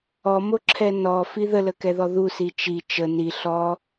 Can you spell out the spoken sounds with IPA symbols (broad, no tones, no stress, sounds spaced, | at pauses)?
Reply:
ɔ m o ǁʰ ɛ n ɔ f i ð ə l ə k ɛ ð ɔ ð u s i t͡ʃ i t͡ʃ ə n i ɬ ɔ